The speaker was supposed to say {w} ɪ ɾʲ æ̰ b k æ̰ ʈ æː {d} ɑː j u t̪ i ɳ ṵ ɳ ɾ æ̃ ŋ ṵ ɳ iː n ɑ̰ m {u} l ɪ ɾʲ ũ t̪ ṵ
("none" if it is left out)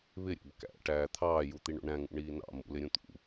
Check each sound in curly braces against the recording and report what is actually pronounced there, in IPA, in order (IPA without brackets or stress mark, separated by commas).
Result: β, t̪ʰ, ṵ